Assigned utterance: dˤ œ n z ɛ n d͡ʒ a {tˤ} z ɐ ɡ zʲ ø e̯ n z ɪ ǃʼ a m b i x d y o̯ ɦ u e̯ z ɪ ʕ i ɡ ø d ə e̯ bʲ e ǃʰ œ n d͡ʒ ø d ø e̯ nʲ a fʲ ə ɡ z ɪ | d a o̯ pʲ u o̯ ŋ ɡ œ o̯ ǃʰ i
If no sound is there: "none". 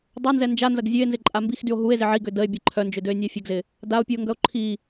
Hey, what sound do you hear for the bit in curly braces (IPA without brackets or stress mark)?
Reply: n